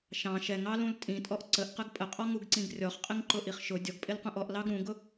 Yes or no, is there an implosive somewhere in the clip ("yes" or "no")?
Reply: no